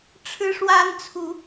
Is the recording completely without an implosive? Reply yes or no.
yes